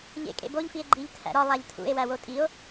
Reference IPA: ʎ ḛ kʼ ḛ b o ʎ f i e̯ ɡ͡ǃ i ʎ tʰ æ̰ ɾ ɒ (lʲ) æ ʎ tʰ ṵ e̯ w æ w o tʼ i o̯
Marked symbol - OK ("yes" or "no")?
no